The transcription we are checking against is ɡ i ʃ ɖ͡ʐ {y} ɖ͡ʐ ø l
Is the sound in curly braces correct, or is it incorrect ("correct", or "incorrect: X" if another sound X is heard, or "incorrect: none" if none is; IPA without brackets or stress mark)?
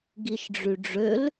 correct